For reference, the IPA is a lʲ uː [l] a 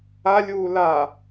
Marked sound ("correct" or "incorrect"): correct